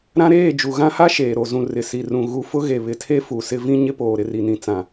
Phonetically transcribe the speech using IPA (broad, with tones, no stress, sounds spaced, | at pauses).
ɾ ã˦ ɾ eː˦˨ d͡ʒ u˨ ɣ ã˦ h a˦ ʃ eː˨ ɾ o˨ z ũ˨ r ɪ˨ s i˨ r ũ˨ ɣ u˨ f ʊ˦ ɣ e˨ β ɪ˨ tʰ e˦ f u˨ s ɪ˦ v ĩ˦ ɲ ɪ˦ p oː˨ ɾ ɪ˨ r i˨ n ĩ˨ t͡s ã˨